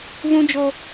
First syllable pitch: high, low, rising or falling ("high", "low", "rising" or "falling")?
high